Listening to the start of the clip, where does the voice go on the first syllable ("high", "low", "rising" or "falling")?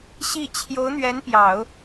falling